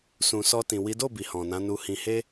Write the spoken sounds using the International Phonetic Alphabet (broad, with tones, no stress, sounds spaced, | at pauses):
s ũ˨ s ɔ˧ t ĩ˨ w i˨˦ d o˦˨ b i˨ h ɔ̃˨ n ã˨˦ n u˧ h ĩ˧ h e˧